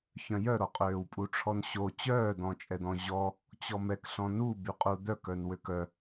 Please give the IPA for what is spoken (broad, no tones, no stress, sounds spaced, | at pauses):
ç œ̃ j œ ɾ ɔ qʼ øː w pʼ u ʈ͡ʂʰ ɔ n ɕ o t͡ɕ œː d̪ ɔ̃ t͡ʃʼ ɛ d̪ ɔ̃ ʑ ɔ | t͡ɕ ɔ m ɛ k ɬ ɔ̃ n u b y qʼ u d̪ œ k œ n w ø k œ